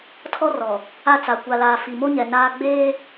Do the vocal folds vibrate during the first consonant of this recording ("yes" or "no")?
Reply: no